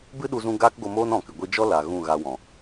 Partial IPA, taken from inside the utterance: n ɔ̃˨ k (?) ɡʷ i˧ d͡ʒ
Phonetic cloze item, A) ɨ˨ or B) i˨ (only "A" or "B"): A